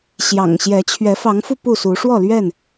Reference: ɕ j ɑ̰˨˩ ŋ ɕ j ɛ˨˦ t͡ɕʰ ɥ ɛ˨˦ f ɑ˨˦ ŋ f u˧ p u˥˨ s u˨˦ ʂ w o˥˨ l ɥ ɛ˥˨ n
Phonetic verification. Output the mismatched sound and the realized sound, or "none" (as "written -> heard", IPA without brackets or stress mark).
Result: o˥˨ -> ɔ˥˨